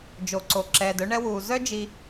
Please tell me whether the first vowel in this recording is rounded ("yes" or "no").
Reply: yes